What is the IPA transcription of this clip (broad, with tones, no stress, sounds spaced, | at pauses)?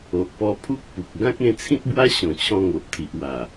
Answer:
o˨ ʔ p ɔ˧ pʰ u˦ k̚ p u˨ k̚ ɡ ã˦ k̚ ẽ˧ t͡sʰ ĩ˦ t̚ b w a˦ ɕ ɔ̃˨˩ t͡ɕʰ ɔ̃˧ ŋ o˨ ʔ t̪ʰ i˨ ʔ w a˨˩